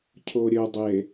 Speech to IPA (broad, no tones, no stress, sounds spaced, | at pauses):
cʰ o ɾʲ ɵ dˤ e